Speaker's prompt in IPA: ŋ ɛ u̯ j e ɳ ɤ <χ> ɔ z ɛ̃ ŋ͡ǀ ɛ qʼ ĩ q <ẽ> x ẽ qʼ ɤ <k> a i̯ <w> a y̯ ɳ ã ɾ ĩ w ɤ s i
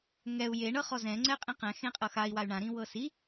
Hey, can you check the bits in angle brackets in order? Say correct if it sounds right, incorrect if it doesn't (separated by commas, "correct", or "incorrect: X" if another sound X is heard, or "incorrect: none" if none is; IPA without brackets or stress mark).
correct, incorrect: ɛ̃, incorrect: x, correct